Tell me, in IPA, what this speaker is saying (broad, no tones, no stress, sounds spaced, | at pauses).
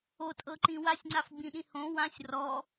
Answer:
o tʼ ɤ ǃ ĩ w a sʲ ŋ͡ǀ a f ɡ͡b ĩ ɗ ĩ h õ w ã sʲ r ɔ